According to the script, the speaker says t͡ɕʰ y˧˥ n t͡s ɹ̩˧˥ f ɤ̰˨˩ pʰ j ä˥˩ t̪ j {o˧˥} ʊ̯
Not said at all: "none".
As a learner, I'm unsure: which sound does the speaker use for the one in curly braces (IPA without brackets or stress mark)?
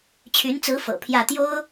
o˥